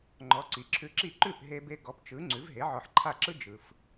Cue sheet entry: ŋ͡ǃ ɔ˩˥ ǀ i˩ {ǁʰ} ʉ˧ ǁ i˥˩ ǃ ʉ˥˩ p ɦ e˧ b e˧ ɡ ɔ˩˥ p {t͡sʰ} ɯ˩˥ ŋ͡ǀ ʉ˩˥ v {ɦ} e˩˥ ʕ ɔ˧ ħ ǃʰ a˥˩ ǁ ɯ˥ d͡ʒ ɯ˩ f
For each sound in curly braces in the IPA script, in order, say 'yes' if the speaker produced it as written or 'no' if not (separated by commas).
yes, no, yes